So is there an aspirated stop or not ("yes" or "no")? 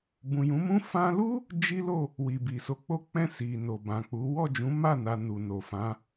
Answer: no